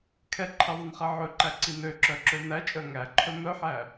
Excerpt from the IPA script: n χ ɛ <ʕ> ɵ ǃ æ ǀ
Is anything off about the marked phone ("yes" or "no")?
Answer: no